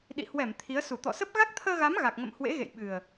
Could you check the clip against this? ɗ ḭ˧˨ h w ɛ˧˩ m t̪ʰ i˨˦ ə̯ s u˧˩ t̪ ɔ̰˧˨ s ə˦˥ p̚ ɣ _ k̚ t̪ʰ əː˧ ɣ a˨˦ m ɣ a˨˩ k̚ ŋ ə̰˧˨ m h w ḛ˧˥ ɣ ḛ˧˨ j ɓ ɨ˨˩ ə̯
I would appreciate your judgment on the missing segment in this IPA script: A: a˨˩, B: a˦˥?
B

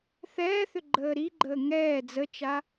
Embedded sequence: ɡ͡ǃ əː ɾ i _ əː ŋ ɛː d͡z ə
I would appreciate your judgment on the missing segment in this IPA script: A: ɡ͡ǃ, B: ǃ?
A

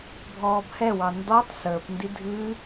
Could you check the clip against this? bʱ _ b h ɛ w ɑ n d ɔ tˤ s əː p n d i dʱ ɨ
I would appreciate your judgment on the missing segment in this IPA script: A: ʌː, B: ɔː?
B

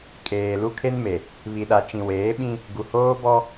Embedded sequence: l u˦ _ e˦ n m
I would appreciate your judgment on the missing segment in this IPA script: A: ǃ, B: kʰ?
B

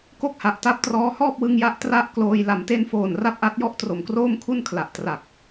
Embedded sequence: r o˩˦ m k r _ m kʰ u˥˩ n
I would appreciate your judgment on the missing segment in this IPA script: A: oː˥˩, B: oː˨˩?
A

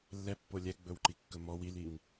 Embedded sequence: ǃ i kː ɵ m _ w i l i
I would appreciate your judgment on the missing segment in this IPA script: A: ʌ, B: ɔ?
B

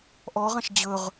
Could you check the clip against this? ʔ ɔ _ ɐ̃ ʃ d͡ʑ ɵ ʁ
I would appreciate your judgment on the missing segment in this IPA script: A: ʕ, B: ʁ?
B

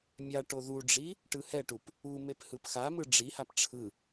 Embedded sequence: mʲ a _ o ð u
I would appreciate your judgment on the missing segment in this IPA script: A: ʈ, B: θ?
A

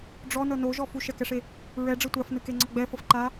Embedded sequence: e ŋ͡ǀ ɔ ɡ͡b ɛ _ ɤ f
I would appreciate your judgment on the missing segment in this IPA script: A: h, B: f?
B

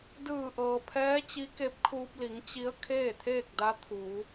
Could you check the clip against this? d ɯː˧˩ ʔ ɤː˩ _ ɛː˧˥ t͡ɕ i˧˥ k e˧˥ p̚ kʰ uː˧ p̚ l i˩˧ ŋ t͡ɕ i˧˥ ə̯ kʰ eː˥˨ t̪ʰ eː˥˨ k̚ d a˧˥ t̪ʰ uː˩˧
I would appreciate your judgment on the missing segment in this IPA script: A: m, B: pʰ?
B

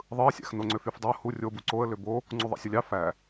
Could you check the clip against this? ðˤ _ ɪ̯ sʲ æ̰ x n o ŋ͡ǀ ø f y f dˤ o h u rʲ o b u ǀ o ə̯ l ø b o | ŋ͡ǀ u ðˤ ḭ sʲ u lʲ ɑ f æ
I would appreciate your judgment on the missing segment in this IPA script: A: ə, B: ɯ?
B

